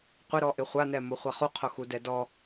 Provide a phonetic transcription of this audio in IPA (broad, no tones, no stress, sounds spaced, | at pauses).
qʷ ɪ ɾ ɔ ʔ ɪ χʷ a n ɛ m o χʷ a χ u qʰ o x u d ɛ d ɔ